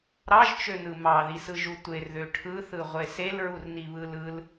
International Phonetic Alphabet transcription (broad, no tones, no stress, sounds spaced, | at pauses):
ɾ ɑ ʒ t͡ʃ ø n ɯ m ɑ ð i s ɯ ʒ u tʷ e r ð ø ʈʰ ɯ θ ɯ ʁʷ e s e l ɹ u r n i β ɯ l ɯ l